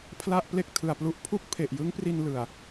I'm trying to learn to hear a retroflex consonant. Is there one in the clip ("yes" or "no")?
no